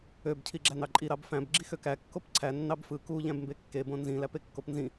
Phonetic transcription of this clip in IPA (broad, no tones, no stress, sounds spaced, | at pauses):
ø b cʰ i ɡ͡ǁ æ n ɑ ǃʼ i ɾ ɑ b f æ̃ b ɡ͡ǁ i x ø k æ kː o p ǀʰ æ nː ɑ b f ɯ k u ʎ æ̃ b m b e kː e b õ n z ĩ l æ p e kː o p n z ĩ